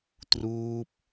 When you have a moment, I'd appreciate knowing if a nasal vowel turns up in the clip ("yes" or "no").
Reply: no